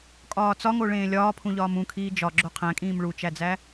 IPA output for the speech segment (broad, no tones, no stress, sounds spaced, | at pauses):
kʼ ɒː t͡s ɒ ŋ o ɭ ẽː lʲ ɒː pʰ ũ ʎ ɒː m ũ kʰ iː d͡ʒ ɒ ɡ͡ǁ o qʰ æ̃ kʼ ĩː m ɭ u t͡ʃ æ d͡z æ